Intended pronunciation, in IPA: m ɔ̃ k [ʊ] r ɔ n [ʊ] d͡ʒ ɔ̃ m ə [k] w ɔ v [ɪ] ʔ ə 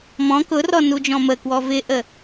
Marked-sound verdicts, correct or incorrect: correct, incorrect, correct, correct

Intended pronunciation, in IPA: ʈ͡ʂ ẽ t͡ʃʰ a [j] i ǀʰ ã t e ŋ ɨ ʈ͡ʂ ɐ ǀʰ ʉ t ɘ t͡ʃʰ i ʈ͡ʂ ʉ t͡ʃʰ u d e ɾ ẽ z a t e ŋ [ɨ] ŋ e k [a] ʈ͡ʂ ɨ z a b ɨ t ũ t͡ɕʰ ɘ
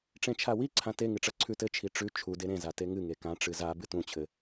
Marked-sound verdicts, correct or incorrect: incorrect, correct, incorrect

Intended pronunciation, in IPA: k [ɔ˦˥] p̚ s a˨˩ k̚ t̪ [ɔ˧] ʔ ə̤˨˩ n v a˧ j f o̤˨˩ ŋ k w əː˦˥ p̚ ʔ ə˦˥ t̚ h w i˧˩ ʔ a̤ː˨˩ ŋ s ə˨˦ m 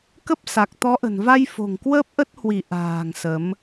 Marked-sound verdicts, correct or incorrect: incorrect, incorrect

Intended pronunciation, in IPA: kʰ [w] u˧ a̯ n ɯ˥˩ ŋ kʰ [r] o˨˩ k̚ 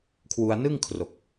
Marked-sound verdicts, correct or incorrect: correct, correct

